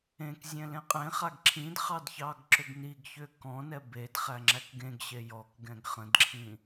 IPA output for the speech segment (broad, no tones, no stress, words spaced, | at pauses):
ẽkzʲɛ̃ lẽqʼẽχaɡ ǁʰĩdχɑd çɑɡǁʏɡniɡçʏ kɔ̃nɛ bedχæ ŋ͡ǁækɡẽɡɕe jɔkɡɛ̃ɡ χə̃dǁʰĩ